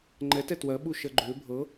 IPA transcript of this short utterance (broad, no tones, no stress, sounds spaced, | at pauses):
ŋ͡ǃ ɛ t ɛ t w ɜ ɓ u ʃ ɜ ɡ͡ǃ ʏː bʱ ɤ